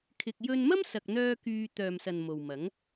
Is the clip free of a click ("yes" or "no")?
yes